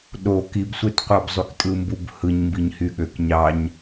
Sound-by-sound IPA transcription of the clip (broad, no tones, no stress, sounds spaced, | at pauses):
ɗ o k i b sʷ e t qʷ ɑ b zˤ y k tʼ ɯ m b u b h ɯ ɲ m b i ɲ h y ɠ ø k ɲ ɑ ɲ